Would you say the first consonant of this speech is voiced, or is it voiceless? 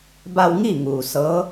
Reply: voiced